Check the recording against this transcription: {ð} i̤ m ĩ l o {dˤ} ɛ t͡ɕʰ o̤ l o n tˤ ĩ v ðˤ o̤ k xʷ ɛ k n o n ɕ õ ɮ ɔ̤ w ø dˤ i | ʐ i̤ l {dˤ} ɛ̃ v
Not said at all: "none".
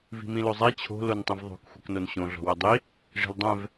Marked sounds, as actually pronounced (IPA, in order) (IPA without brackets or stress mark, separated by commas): v, zˤ, dˤ